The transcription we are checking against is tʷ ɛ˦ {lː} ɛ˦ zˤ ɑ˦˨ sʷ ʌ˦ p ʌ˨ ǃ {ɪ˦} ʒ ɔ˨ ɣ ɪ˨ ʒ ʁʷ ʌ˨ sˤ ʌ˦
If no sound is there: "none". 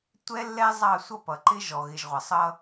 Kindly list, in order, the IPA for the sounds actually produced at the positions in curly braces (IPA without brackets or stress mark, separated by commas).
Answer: lː, ɪ˦